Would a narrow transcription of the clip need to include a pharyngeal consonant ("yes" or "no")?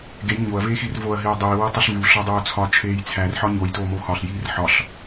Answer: yes